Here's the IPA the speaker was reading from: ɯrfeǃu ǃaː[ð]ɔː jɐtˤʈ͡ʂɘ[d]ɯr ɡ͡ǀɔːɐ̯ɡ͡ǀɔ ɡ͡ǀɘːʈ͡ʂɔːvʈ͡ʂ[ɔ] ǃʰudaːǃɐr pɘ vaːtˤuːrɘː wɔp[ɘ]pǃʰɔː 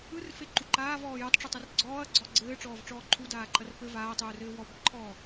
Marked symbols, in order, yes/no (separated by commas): no, no, no, yes